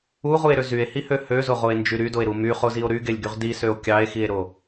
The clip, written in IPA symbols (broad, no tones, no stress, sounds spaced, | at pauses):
u ʁ u e̯ ɾ ø z y e̯ h i h ø h ø z o ʁ o e̯ n d͡ʒ y ɾ y d o e̯ ɾ u m y χ o z i o̯ ɾ y ɡ e lʲ ɡ y ʁ d i s ø o̯ kʲ ɑ e̯ x i e̯ ɾ o